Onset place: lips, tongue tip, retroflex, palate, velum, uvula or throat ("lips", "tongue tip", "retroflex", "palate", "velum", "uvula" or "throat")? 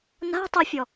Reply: tongue tip